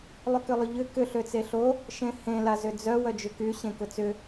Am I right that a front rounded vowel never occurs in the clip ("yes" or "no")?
no